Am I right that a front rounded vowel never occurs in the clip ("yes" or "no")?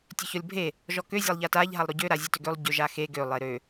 no